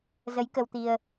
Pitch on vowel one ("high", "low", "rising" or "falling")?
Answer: rising